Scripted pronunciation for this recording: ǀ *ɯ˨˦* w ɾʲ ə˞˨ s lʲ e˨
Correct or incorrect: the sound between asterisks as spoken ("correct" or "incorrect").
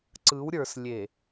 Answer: correct